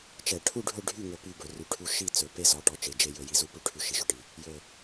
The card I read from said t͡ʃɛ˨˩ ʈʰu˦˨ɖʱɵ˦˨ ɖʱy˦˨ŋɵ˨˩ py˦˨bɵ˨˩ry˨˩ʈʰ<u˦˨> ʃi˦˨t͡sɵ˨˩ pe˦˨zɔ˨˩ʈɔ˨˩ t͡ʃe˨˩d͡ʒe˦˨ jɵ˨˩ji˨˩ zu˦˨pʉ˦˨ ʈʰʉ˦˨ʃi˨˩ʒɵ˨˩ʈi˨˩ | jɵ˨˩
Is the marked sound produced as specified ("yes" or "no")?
yes